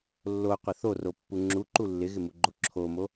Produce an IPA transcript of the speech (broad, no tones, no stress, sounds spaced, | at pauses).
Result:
lː o qʷ ɪ θ o r o pː u ŋ͡ǁ u ǃ u lː ɪ ɣ ɪ m u ɡ͡ǃ o ǁʰ o m o